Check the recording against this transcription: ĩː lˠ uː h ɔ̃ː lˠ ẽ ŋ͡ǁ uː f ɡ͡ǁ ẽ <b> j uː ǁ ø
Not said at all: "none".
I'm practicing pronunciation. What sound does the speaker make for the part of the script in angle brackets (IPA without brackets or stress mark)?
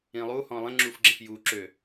f